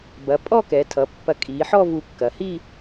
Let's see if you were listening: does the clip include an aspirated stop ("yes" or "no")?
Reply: yes